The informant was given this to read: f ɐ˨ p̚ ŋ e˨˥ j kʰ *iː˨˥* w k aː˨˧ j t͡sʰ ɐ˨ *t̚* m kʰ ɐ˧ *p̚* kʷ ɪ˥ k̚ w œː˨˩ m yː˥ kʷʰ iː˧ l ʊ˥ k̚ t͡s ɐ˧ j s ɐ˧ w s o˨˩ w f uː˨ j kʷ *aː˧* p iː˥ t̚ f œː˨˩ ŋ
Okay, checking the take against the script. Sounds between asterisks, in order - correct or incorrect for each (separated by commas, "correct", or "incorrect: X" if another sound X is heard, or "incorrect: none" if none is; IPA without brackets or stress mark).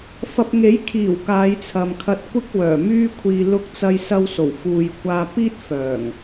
incorrect: iː˨˩, incorrect: none, incorrect: t̚, correct